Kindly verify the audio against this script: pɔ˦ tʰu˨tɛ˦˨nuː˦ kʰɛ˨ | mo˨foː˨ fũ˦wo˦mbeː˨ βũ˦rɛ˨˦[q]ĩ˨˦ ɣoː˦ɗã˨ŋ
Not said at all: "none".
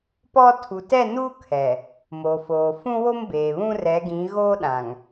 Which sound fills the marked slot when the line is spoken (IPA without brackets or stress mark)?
ɡ